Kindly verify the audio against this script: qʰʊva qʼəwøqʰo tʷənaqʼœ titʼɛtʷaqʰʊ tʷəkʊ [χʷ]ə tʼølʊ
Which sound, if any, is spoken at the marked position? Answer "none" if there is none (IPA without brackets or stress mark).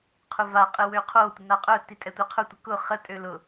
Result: χ